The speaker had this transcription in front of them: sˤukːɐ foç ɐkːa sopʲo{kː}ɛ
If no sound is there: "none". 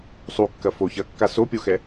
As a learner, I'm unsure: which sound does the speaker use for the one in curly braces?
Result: x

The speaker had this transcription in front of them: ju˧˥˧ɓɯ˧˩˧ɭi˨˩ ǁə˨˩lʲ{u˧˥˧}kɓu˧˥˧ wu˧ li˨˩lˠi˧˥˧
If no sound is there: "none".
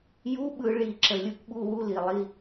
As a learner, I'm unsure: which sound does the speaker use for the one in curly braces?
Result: u˧˥˧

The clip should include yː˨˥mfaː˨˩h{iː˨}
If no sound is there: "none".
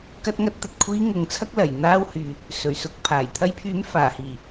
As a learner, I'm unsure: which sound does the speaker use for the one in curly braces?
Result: iː˨˩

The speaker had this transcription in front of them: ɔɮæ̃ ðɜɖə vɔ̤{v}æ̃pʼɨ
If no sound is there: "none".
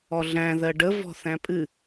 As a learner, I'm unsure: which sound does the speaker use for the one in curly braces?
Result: θ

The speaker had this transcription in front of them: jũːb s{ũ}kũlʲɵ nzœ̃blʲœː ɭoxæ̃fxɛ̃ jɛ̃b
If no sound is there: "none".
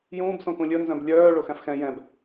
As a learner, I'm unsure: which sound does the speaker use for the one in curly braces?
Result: õ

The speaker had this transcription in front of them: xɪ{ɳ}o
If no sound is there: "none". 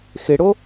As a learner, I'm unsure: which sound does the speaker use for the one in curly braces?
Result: ɽ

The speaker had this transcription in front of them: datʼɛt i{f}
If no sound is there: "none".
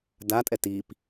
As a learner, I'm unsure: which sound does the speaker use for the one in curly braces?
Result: p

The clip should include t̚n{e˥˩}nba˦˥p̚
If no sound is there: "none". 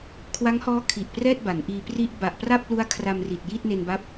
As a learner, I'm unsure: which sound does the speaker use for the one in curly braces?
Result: e˧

